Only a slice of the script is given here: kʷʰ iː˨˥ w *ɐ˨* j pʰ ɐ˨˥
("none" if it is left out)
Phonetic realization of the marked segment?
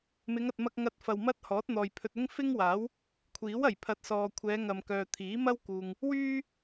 ɐ˨˩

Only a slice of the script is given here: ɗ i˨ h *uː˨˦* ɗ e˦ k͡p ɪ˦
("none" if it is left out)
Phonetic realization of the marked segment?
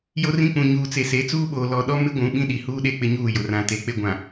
uː˦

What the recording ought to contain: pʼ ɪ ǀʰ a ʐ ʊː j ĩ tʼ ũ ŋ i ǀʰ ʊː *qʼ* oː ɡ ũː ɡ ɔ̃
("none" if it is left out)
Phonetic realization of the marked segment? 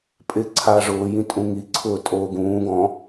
tʼ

